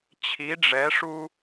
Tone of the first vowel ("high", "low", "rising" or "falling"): rising